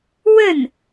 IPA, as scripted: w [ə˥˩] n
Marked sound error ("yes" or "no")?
no